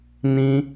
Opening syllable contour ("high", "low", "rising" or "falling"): high